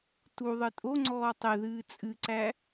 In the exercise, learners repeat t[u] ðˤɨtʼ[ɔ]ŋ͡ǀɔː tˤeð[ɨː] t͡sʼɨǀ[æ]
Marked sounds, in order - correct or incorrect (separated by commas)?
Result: correct, incorrect, correct, correct